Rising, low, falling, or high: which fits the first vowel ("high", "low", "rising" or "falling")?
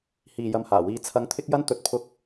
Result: low